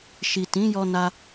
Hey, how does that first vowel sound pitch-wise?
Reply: low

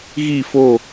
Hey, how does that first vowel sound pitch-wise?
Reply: falling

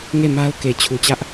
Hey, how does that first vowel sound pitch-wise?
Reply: falling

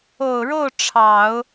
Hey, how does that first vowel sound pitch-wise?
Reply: low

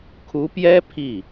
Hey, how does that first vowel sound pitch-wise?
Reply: rising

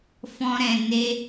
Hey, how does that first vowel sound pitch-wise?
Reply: high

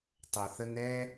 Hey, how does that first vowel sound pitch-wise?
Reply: low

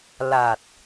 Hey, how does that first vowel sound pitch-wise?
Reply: low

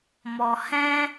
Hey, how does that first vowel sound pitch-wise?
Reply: low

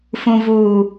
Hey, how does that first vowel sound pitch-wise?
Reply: low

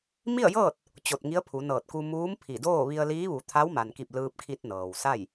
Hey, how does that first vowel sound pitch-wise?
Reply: falling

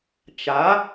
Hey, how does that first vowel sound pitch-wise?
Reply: rising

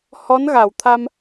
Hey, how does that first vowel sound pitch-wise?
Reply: rising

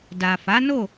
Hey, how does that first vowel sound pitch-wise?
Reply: low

